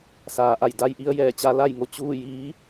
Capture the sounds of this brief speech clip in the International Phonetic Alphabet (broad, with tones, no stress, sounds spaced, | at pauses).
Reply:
s aː˩˧ ʔ a˧˩ j d a˧˥ j ʔ i˧˥ ə̯ j ɛː˧˩ t͡ɕ a˧˥ l a˥˨ j ŋ o˩˧ t͡ɕ uː˥˨ j iː˧˥